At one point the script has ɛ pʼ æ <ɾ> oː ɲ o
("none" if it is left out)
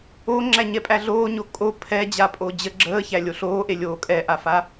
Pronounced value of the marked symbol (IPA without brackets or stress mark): ɮ